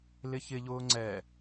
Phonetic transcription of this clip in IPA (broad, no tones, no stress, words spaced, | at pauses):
lɪçɪʎʊː ŋ͡ǀɛ